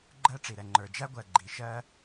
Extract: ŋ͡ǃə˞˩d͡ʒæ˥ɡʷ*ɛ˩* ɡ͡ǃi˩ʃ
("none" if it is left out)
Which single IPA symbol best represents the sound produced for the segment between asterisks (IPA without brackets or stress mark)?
ɜ˩